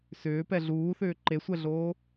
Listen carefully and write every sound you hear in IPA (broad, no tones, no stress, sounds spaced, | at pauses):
s ʏː p ɛ ɮ uː θ ʏː ǃ e sʷ ɛ ɮ oː